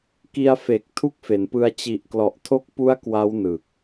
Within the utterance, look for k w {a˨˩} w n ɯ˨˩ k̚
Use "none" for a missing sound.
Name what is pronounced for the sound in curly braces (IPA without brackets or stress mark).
a˦˥